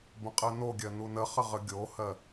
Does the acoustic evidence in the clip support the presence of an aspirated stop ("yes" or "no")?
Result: no